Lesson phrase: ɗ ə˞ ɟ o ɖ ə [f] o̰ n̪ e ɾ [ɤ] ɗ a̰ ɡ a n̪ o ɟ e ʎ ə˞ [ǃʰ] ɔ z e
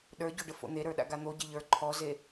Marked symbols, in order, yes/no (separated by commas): yes, no, yes